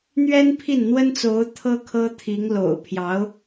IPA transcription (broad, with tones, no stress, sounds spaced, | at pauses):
n̪ ɥ ɛ˥ n pʰ i˥˩ n n̪ w ə˥ n t͡s o˧˥ ʊ̯ t̪ʰ ɤ˥ kʰ ɤ˥ t̪ʰ i˧˥ ŋ l o̰˨˩ ʊ̯ pʰ j ɑ˧˥ ʊ̯